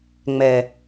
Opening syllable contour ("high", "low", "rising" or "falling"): low